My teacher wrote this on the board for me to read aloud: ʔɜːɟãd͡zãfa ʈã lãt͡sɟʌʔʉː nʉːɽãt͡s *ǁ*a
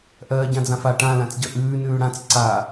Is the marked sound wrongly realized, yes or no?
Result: yes